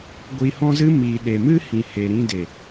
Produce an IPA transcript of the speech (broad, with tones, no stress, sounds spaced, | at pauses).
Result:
ɡʷ i˧ h ɔ̃˦ z ɨ˦ m i˨ ɗ e˨ m ɨ˦ h ĩ˨ h e˨ ɾ ĩ˧ d e˨